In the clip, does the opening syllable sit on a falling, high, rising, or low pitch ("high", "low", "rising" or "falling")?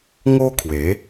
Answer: high